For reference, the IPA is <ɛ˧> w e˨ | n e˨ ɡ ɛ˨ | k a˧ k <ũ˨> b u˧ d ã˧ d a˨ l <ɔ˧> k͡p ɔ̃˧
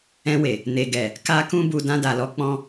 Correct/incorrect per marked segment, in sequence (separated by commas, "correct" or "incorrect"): incorrect, incorrect, correct